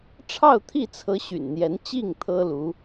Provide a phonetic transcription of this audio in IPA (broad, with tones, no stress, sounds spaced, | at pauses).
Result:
ʈ͡ʂʰ ɑ˥˧ ʊ̯ t̪ʰ i˥˩ t͡sʰ ɤ˧˥ ɕ y̰˨˩ n n̪ j ɛ˧˥ n t͡ɕ i˥˩ ŋ t̪ʰ ɤ˥ l u˧˥